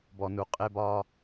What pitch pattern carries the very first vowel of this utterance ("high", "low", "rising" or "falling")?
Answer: low